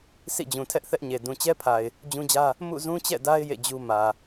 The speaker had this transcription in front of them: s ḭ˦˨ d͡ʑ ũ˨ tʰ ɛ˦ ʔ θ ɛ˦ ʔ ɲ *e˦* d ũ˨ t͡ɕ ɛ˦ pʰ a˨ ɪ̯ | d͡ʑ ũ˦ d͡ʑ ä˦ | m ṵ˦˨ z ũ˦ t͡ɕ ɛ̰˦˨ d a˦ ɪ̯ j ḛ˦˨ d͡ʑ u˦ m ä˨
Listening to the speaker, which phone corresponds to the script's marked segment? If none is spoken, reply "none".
e˨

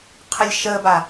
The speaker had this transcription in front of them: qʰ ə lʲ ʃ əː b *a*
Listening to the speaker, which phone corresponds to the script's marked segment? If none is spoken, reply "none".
a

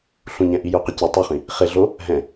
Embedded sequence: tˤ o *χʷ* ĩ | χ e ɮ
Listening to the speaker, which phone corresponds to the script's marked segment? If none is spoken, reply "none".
χ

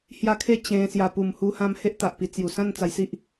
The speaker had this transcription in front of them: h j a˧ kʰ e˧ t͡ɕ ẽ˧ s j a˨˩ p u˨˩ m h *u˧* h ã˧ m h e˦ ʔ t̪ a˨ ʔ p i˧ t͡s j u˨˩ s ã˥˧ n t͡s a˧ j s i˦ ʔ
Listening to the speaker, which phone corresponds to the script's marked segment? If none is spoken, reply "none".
u˧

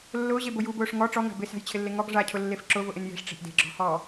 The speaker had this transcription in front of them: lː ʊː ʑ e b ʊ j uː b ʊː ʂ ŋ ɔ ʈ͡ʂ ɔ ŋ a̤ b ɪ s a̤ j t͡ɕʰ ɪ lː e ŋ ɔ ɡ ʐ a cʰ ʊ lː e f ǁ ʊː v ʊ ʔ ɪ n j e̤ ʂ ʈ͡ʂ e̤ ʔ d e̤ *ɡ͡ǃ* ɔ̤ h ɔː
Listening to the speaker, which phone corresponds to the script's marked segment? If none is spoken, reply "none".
ɡ͡ǁ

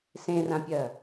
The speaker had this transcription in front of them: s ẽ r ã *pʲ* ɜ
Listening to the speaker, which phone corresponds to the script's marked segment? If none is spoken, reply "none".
pʲ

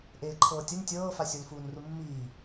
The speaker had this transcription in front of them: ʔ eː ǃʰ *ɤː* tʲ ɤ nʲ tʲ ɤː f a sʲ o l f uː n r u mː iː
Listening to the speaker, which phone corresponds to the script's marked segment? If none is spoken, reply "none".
ɤː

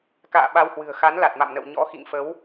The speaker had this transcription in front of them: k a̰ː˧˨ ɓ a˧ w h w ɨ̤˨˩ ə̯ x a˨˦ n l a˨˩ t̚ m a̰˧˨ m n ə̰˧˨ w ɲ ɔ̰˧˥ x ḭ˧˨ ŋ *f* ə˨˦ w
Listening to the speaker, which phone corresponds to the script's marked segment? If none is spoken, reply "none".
f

